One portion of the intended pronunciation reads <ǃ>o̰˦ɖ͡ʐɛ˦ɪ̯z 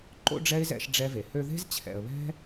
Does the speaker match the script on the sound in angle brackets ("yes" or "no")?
yes